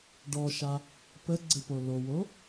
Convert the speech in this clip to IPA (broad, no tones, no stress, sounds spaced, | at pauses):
ɖ ɔ ʃ a | p ə ɡ͡ǀ ɘ p o l o w o